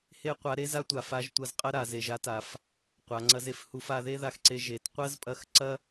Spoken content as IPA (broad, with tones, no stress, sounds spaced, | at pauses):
h e˥ qʷ a˧˥ ɾ e˥ z a˥ tʷ a˧ f a˧˥ ʒ tʷ ɐ˧˥ z qʼ ɐ˥ ɾ a˩˧ z e˩˧ ʒ a˥ t a˩˧ f | qʷ a˩˧ ŋ͡ǀ ɐ˧ z e˧ f h u˧ f a˧ ð e˥ ð a˧ x ǀ e˧ ʒ e˩˧ t qʷ ɐ˥ z pʼ ɐ˧˥ x ǀ ɐ˥